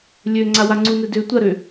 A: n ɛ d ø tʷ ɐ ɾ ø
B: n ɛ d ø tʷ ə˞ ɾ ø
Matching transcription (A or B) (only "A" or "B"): A